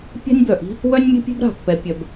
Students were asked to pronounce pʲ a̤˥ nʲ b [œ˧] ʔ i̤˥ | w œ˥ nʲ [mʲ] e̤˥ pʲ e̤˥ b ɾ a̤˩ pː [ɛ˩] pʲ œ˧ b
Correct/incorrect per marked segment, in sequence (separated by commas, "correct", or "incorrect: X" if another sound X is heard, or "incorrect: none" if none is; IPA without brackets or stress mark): incorrect: œ˩, correct, incorrect: ɛ˧